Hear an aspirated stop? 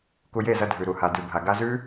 no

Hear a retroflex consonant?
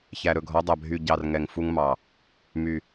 no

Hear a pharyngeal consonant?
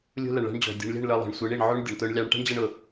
yes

